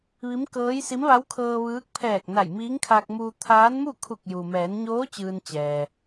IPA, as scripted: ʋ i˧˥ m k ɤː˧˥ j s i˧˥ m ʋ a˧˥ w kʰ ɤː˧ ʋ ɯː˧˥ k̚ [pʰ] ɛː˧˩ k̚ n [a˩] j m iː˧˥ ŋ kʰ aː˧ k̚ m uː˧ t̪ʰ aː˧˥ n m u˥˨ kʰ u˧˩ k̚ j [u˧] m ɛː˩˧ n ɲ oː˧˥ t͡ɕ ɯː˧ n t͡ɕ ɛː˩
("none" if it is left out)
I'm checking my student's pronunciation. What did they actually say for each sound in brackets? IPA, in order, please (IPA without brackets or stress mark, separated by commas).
pʰ, a˧˩, u˩